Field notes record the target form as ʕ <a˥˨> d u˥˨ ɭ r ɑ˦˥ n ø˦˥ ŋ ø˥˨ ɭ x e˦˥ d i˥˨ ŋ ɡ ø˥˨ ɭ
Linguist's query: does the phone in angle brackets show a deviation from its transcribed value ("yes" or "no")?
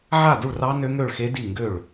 no